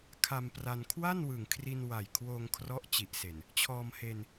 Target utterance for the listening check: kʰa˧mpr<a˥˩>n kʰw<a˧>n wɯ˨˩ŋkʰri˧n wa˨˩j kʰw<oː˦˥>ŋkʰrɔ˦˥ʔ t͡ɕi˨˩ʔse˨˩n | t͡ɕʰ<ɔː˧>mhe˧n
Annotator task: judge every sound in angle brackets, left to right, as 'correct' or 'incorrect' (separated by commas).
incorrect, incorrect, incorrect, correct